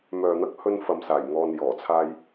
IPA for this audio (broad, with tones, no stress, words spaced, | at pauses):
mœː˨n̪ɐ˧k̚hɵ˧n fɐ˨msaː˨˩jŋɔː˨n jɔː˨˩t͡sʰaː˧j